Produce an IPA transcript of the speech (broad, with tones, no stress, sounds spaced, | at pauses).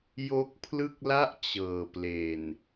j o˦˥ k̚ pʰ l ɯ˥˩ k̚ l a˥˩ ʔ t͡ɕ ɤː˨˩ p l e˨˩ n